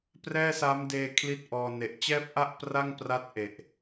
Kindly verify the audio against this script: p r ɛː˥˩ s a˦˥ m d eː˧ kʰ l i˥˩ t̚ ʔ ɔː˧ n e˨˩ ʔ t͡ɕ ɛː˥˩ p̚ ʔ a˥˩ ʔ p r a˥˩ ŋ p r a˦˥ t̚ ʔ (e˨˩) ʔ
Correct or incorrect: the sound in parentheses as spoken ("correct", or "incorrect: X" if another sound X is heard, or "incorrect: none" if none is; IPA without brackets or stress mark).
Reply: correct